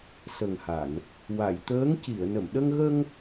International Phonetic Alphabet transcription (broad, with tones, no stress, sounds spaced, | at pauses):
s ə˨˩ ŋ h a˨˩˨ n | w a˨˩˨ j t̪ əː˧˥ ŋ c i˨˩˨ ə̯ n ə˨˩˨ m ɗ ə˧ ŋ ɣ ə˧ ŋ